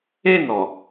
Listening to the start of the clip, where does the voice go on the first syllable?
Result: falling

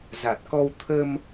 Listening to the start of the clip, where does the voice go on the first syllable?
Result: low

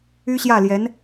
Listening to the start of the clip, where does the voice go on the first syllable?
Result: high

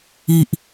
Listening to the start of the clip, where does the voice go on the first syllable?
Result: low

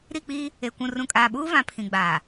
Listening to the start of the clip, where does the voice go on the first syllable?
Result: falling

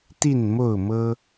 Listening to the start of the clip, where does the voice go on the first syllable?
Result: falling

